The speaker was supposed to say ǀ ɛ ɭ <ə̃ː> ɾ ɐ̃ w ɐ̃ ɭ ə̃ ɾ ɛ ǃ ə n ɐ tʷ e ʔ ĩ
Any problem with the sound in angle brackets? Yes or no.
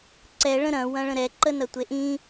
yes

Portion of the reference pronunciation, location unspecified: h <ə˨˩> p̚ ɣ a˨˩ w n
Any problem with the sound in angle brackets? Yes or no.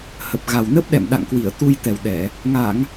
no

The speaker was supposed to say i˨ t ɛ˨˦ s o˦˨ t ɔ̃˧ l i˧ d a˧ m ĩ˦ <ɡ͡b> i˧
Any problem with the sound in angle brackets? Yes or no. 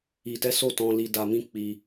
yes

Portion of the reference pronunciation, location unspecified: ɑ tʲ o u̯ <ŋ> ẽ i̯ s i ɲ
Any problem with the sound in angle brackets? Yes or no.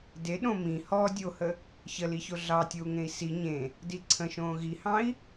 no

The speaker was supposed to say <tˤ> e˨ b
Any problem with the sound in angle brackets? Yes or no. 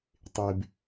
no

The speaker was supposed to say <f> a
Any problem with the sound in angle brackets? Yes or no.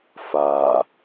no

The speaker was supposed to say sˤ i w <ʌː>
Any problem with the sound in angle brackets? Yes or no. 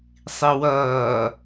no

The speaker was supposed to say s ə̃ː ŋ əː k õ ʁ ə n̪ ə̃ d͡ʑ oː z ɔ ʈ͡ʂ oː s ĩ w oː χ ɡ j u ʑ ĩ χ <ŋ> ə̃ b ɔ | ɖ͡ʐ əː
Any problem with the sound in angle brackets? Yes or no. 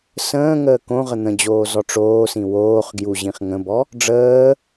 no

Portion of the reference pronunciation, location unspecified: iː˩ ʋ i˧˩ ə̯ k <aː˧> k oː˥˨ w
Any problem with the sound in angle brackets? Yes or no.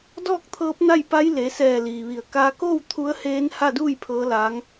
no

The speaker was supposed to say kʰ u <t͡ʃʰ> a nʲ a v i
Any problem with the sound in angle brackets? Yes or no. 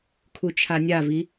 no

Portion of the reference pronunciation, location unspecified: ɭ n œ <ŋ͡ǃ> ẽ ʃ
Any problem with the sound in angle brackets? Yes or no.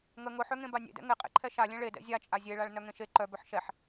yes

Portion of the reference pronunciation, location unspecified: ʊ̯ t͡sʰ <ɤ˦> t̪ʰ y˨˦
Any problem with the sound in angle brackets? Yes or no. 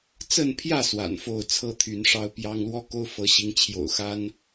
no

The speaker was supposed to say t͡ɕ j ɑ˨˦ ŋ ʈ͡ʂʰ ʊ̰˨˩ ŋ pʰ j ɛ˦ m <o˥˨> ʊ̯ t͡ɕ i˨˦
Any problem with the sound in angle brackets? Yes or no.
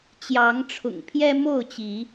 no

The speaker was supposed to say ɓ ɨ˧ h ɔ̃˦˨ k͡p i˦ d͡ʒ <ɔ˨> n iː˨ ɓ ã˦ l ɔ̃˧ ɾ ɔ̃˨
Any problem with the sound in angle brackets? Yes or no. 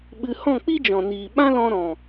yes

